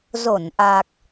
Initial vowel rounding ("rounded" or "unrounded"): rounded